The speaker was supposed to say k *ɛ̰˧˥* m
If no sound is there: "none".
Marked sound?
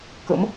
ə̰˧˥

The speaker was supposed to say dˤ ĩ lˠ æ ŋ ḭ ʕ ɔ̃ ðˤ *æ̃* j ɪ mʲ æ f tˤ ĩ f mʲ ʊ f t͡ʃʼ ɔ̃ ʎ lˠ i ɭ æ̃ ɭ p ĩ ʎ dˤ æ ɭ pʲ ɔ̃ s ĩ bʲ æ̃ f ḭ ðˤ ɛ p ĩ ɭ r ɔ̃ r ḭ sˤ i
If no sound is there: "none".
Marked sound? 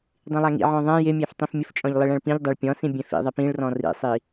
æ̃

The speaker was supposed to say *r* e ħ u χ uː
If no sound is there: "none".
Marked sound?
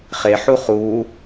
χ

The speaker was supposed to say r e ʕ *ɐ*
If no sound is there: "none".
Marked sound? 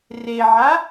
a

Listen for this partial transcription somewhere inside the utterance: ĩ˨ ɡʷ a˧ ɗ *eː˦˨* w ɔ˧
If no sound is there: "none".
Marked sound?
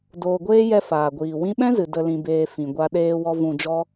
eː˧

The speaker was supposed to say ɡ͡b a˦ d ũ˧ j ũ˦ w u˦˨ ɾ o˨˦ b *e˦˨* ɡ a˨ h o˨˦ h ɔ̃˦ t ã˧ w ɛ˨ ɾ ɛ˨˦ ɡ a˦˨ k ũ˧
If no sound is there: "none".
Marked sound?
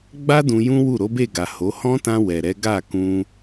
e˦˨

